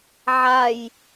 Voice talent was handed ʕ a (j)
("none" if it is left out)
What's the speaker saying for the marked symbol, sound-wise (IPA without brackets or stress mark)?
j